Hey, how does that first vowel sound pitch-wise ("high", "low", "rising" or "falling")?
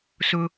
high